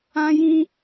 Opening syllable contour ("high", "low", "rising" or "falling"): high